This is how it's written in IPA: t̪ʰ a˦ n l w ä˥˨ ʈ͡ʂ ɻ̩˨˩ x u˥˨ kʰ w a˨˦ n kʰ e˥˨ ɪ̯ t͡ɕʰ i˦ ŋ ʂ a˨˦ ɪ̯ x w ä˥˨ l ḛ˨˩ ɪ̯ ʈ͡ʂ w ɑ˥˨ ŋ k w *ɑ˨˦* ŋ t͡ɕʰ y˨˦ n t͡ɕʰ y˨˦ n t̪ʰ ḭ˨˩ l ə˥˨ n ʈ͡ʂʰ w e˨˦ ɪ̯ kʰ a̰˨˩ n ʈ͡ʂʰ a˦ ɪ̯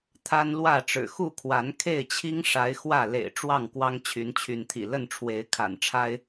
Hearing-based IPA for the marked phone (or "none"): ɑ˦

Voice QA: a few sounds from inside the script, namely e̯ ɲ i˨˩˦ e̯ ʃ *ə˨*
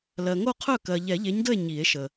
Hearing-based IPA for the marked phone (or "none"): ə˨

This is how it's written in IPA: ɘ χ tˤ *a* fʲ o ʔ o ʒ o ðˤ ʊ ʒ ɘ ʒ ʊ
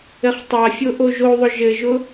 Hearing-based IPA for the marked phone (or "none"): a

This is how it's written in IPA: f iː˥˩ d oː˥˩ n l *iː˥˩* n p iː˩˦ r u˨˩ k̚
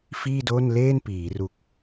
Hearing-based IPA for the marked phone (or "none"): eː˥˩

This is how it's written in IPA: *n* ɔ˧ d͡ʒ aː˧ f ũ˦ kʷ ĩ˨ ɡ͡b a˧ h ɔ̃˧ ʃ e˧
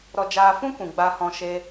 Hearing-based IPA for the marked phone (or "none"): ɾ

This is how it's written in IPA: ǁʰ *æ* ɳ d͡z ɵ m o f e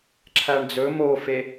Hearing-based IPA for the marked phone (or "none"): æ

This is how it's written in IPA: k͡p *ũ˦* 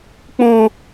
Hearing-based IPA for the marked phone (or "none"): ũ˦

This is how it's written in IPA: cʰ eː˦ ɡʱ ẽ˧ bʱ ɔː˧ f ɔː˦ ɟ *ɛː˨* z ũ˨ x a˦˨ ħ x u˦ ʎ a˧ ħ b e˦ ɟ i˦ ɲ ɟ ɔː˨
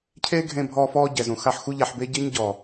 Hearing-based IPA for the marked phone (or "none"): ɛ˨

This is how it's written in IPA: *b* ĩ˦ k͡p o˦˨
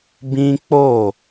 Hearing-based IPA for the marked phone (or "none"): b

